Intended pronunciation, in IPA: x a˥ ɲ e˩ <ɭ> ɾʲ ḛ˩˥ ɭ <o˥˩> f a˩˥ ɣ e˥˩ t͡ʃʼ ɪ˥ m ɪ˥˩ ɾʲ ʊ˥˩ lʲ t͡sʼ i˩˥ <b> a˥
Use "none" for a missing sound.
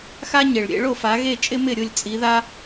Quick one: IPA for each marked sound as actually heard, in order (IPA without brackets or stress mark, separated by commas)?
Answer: ɭ, o˥˩, ð